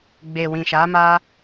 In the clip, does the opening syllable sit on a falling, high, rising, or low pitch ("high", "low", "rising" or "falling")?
low